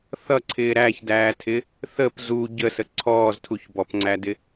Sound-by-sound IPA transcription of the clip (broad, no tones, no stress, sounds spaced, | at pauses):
θ ʌ ǀʰ ɪː ɾ æ ç d æː tʰ ɪ | θ ə p z u ɟ ə s ə ǀʰ ɔː z tʰ u ç b ɔ p ŋ͡ǀ æ d ɪ